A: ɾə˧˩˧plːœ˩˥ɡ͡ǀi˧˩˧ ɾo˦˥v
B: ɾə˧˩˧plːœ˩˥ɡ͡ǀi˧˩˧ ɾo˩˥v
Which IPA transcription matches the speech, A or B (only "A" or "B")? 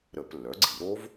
A